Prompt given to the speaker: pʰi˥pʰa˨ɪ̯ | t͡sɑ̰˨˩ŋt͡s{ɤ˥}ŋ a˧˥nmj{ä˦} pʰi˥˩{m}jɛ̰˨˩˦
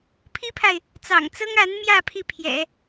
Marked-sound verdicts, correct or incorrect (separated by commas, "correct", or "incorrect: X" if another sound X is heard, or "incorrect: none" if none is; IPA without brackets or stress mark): correct, incorrect: ä˥˧, incorrect: pʰ